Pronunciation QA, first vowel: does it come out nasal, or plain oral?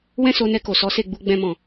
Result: nasal